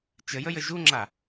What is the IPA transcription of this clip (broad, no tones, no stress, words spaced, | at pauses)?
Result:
t͡ʃəjəjə ʒuŋ͡ǁa